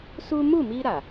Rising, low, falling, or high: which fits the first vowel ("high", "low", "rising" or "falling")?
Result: high